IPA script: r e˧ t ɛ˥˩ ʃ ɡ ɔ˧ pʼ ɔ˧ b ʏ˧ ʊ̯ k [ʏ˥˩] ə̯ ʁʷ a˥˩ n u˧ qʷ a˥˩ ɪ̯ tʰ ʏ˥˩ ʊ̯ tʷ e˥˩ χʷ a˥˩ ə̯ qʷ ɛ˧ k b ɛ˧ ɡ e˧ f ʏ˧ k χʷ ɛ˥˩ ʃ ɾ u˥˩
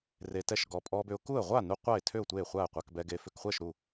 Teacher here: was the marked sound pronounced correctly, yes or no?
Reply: no